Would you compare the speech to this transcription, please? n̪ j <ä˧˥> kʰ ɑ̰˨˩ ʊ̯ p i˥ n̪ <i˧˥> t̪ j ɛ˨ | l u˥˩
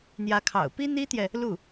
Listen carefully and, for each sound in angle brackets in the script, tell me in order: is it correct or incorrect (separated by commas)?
correct, incorrect